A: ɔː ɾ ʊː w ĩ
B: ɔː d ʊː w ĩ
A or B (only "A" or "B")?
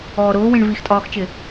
A